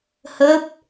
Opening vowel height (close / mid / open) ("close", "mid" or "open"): mid